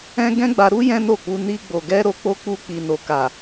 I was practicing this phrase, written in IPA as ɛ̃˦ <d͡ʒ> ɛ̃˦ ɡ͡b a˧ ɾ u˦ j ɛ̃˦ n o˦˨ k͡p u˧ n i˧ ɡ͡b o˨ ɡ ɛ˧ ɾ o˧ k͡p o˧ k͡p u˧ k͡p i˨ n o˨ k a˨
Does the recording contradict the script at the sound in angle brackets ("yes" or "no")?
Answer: yes